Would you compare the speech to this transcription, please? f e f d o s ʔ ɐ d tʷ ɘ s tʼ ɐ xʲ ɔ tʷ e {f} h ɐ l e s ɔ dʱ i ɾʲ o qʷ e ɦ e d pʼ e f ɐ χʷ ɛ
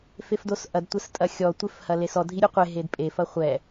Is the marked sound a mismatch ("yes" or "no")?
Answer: no